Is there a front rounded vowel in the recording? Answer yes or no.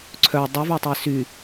yes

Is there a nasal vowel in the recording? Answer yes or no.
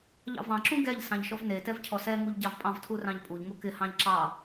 yes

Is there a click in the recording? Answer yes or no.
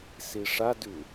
no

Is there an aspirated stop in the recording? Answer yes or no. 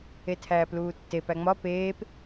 yes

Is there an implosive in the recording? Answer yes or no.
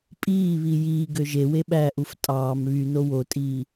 yes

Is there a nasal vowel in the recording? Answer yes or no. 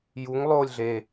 no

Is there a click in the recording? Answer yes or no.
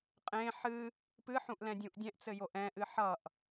no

